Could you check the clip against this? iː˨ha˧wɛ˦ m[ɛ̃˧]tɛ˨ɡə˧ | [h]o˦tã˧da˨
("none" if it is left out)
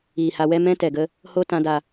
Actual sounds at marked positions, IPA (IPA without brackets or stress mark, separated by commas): ɛ̃˦, h